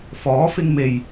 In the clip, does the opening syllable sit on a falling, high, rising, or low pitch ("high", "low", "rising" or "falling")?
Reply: rising